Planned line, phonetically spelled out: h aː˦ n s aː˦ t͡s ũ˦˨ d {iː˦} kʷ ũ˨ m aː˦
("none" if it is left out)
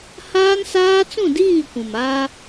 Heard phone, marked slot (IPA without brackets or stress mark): iː˦˨